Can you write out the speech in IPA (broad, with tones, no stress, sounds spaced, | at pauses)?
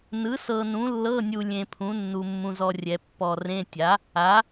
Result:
n ɯ˨˥ s ɤ˧ n ũ˨˥ lː ɤ˧˥˧ nʲ u˧ lʲ ẽ˧ pʰ ũ˨˥ nː u˧ mː ũ˧ z ɔ˧ rʲ ɛ˧ pː ɔ˧ r ẽ˧˥˧ tʲ a˨˥ | a˨˥